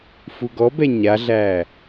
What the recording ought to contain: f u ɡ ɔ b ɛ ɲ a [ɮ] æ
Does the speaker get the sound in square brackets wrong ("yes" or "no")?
no